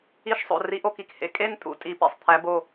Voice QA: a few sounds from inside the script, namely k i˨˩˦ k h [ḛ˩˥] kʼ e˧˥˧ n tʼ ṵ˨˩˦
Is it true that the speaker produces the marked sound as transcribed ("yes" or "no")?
yes